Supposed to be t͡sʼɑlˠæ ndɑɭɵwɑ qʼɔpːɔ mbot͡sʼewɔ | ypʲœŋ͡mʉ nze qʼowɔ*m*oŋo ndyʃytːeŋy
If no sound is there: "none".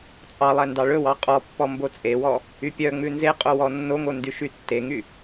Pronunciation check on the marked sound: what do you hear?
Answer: nː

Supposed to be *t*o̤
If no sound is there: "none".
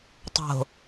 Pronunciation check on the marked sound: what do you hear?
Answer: tˤ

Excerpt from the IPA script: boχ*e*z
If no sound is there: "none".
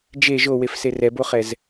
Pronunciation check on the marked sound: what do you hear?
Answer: ɛ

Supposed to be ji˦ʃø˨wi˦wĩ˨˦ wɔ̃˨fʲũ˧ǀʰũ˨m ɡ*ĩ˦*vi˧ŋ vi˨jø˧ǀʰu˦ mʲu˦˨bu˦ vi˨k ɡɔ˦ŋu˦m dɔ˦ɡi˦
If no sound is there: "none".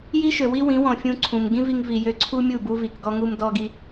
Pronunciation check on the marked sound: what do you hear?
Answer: ĩ˦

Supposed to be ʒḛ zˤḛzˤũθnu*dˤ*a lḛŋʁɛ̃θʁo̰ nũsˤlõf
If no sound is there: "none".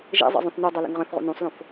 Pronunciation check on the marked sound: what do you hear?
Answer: dˤ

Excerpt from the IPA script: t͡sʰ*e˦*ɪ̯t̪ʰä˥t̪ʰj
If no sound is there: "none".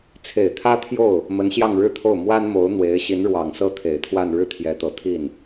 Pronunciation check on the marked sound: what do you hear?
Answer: e˨˩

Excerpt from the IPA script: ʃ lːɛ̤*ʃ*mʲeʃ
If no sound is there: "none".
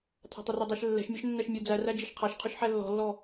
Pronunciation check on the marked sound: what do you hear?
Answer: ʃ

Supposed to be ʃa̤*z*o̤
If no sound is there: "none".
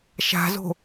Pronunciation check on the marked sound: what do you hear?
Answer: z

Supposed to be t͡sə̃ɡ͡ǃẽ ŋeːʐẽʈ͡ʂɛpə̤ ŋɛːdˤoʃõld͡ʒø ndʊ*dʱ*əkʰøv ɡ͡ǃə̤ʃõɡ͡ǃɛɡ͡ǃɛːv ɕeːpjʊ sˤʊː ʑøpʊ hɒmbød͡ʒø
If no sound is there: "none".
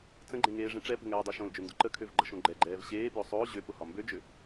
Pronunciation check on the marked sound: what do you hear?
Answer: ǃ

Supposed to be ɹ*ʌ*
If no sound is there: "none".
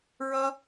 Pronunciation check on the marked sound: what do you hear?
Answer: ʌ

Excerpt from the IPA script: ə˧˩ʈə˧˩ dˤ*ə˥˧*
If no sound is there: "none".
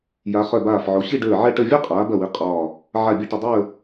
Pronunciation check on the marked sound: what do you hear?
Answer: əː˥˧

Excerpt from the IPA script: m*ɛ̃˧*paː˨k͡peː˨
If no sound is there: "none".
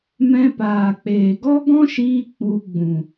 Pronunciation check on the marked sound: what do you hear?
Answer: ɛ̃˧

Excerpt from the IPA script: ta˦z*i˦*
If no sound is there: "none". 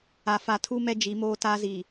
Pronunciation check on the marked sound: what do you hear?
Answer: i˨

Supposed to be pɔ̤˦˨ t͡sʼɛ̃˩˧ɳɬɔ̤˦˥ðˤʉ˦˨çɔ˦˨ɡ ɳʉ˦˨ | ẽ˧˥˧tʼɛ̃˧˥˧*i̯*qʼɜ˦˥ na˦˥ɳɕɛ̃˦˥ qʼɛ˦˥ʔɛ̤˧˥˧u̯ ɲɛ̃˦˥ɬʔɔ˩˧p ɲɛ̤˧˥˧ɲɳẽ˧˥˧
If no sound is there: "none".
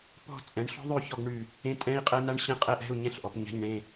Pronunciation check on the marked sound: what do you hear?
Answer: i̯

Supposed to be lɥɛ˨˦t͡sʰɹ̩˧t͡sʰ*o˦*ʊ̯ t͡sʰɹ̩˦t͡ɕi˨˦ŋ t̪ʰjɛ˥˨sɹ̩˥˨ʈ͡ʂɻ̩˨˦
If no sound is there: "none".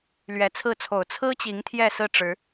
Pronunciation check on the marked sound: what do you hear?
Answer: o˨˩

